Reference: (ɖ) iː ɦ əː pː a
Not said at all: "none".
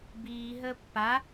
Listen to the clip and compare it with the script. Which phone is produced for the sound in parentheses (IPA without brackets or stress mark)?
b